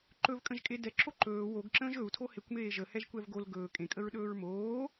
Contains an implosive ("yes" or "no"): yes